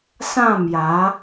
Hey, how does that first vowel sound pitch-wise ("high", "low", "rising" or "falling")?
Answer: falling